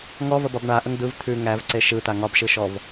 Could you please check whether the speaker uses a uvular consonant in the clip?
no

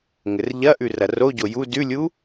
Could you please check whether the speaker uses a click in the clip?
no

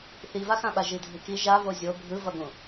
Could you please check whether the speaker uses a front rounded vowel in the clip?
no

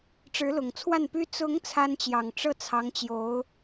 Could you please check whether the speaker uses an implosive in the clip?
no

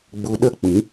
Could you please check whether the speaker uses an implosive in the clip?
yes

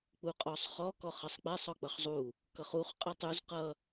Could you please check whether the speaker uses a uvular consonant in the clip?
yes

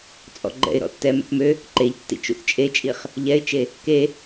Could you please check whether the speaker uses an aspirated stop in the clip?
no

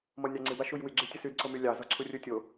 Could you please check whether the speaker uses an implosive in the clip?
no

